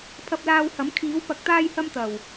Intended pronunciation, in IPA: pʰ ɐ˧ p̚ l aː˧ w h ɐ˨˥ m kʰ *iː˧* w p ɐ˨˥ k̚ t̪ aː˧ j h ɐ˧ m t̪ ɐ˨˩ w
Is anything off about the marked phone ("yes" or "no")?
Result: yes